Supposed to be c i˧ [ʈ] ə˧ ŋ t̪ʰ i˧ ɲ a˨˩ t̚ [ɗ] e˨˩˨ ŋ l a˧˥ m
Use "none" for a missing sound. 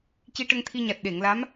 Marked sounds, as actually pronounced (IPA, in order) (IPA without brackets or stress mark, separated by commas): ʈ, ɗ